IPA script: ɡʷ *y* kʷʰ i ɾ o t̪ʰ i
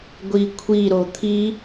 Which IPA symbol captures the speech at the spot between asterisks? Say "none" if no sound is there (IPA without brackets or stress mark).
i